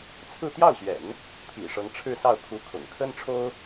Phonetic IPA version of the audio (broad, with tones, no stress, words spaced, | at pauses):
t͡sʰɹ̩˥˧ t̪jɑ˥˩ʊ̯ɕɥɛ̰˨˩˦n | pʰḭ˨˩ʂɤ˧˥ŋ ʈ͡ʂʰɻ̩˥˧sɑ˥˩ʊ̯ kʰu˧˥ kʰʊ̰˨˩ŋ kʰə˥nʈ͡ʂʰo˥ʊ̯